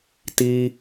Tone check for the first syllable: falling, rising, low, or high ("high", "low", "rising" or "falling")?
low